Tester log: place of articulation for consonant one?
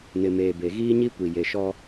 alveolar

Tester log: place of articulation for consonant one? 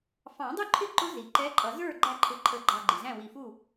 labial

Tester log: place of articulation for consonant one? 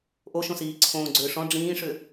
glottal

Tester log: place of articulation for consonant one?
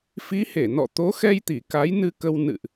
labial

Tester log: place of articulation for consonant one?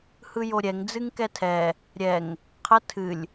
glottal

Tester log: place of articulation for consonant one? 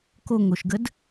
velar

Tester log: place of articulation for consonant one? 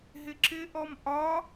glottal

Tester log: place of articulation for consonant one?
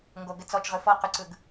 velar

